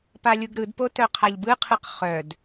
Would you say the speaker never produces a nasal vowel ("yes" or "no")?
yes